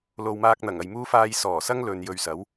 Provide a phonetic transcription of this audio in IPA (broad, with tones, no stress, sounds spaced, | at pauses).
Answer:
l o˨ w m aː˧ k̚ n̪ ɐ˨˩ ŋ ɐ˨ j m uː˥ f aː˧ j s ɔː˨˩ s ɐ˥ ŋ l ɵ˨ n j ɵ˧ ɥ s ɐ˨˥ w